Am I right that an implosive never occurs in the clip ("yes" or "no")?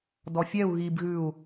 yes